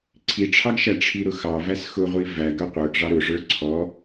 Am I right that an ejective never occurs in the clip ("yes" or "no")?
yes